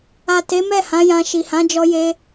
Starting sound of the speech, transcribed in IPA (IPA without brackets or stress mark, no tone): a